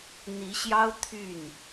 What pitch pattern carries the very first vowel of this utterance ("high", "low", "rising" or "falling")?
rising